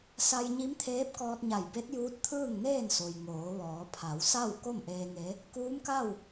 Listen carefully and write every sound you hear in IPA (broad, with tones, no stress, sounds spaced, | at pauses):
s a˧ j ɲ i˧˥ m t̪ʰ eː˧˥ p̚ k ɔː˧ t̚ ɲ a˧˩ j b e˧˥ t̚ j uː˧˥ t̚ t̪ʰ ɯː˥˨ ŋ n eː˥˨ n s o˩ j ŋ oː˩˧ ʋ ɔː˩˧ pʰ a˩˧ w s a˥˨ w k o˥˨ m ʔ eː˧ ŋ e˧˥ | k uː˧˥ m k a˥˨ w